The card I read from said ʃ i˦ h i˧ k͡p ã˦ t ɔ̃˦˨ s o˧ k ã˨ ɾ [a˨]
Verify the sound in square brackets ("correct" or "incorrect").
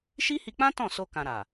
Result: correct